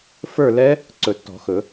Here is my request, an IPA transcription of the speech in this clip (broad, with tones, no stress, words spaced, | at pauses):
fə˞˥˧lɛ˦˥ | ǀɵ˨˩˦tːɔ̤˨˩˦xɵ˨˩˦